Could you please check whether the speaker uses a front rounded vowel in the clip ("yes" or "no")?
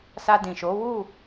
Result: no